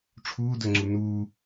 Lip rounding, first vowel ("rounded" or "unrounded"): rounded